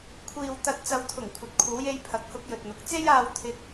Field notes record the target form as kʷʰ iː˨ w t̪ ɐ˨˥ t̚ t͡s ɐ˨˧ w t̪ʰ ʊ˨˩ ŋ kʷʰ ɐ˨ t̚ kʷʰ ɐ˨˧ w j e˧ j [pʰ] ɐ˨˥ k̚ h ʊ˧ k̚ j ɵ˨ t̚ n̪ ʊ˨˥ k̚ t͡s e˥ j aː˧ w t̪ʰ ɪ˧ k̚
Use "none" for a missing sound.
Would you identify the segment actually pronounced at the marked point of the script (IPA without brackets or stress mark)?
pʰ